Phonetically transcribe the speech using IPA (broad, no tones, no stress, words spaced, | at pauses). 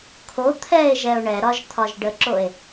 kʰo t̪ʰɛe̯ʒɛo̯ ɳɛɾɒʒ t̪ʰɒʒɖəǁoe̯